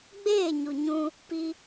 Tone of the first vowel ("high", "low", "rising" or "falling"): falling